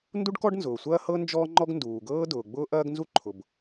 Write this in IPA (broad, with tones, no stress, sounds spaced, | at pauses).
n d u˥ ɖ k ɔ˥ ɖ n z ʊː˩ sʷ ɐː˥ h ɤ˥ n d͡ʒ ɔː˥ ŋ͡ǃ ɔ˥ ɡ n d uː˩ ɡ ɤː˥ d ʊː˩ ɡ͡b ʊː˥ ʔ ɐː˥ ɡ n z u˥ ǃʰ ʊ˩ b